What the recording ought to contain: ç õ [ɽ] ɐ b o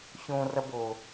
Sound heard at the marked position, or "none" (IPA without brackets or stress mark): r